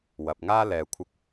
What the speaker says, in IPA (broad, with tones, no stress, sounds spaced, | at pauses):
w ɐ˨ p̚ ŋ aː˥ l ɛː˨ kʷʰ ɪ˧ k̚